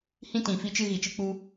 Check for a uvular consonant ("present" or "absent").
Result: absent